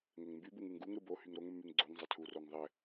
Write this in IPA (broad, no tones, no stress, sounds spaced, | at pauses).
ŋ ɘ ŋ m b y b u ŋ ɯ ŋ ɡ u ŋ ɾ ɯ b o h y ŋ ɾ o ŋ mː y ŋ ɡ͡ǀ o ŋ zˤ ɘ tʰ u r o ŋ ðˤ ɘ